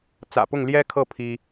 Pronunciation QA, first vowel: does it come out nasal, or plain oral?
oral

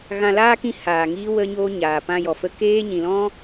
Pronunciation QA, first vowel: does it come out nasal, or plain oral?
nasal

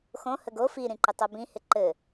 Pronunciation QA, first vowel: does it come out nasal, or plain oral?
nasal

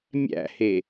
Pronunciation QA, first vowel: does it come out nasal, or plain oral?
oral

